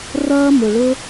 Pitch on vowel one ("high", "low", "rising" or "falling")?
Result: high